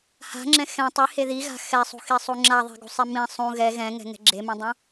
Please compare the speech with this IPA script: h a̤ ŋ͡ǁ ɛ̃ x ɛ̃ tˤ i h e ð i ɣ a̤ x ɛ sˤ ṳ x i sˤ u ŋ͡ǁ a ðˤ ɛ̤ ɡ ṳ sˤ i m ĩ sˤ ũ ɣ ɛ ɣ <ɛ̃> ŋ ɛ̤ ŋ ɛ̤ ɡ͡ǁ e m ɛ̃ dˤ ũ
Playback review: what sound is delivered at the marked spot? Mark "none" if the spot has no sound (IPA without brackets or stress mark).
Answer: ɛ̃